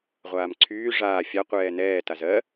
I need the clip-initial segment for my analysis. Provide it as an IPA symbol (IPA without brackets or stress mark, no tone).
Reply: ʁʷ